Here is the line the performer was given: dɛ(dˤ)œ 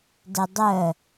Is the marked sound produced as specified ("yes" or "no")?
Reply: yes